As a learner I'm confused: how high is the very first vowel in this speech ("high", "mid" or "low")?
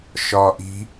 low